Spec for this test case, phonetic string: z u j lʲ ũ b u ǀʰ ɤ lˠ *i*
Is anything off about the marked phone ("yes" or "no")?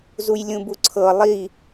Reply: no